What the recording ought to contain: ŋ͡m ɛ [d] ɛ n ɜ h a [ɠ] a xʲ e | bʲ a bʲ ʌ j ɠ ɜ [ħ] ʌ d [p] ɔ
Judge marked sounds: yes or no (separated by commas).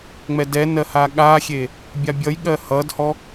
yes, yes, no, no